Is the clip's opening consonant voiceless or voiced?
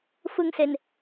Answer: voiceless